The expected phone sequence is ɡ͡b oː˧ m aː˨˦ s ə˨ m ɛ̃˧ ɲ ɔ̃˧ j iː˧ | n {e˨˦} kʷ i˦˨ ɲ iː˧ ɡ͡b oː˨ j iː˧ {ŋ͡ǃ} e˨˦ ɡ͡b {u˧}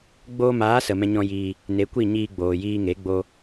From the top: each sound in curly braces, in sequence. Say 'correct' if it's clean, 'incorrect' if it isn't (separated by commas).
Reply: correct, incorrect, incorrect